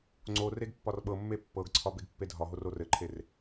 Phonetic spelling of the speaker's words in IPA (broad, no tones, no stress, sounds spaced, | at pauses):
ŋ͡ǀ o r e ɡ pː ɒ r ɓ ɤ mː e pː ɤ ɡ ǀʰ ɒ b e ɡ pː e dʱ ɒ ɦ o r o r ɘ ǃʰ e r